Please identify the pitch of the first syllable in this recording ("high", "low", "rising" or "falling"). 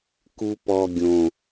low